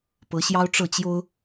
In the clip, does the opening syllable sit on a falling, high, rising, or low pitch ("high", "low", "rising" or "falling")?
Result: rising